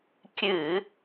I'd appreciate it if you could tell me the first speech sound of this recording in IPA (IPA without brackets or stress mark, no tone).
kʲ